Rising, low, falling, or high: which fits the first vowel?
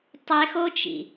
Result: high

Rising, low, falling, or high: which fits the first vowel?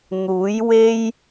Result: rising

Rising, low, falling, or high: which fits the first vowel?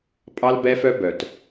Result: high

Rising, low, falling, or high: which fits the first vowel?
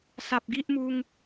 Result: low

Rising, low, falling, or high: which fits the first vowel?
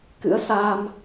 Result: rising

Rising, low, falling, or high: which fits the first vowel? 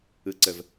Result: low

